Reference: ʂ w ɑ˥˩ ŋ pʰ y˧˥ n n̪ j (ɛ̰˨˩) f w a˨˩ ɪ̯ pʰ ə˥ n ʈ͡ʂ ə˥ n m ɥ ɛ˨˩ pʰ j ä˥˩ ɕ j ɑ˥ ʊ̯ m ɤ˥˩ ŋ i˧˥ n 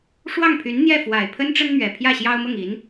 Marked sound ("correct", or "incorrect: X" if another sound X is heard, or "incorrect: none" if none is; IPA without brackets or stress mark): incorrect: ɛ˥˩